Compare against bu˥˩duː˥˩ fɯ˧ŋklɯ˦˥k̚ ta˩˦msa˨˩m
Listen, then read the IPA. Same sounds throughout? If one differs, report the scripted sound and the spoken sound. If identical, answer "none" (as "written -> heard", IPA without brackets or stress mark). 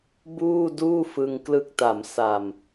u˥˩ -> uː˥˩